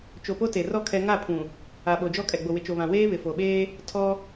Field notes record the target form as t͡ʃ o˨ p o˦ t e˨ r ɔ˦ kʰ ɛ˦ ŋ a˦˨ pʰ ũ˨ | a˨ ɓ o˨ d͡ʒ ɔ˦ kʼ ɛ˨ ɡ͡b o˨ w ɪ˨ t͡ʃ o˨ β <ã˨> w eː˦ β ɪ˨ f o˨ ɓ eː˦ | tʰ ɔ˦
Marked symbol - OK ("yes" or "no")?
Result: yes